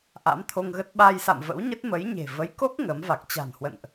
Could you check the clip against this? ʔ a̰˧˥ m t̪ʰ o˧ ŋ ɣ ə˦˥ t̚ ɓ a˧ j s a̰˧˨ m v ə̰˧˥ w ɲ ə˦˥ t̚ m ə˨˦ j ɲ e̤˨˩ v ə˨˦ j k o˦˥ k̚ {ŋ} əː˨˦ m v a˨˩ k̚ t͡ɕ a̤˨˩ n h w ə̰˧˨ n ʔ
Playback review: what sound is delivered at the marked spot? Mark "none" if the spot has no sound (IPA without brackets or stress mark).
ŋ